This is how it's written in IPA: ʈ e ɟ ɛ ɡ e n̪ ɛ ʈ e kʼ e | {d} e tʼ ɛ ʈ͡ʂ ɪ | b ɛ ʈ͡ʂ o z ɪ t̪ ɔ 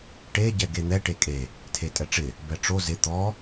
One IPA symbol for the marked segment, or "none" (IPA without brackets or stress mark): tʰ